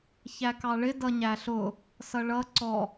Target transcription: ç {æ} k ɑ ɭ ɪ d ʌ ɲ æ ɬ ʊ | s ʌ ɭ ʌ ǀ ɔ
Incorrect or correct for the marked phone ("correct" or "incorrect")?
correct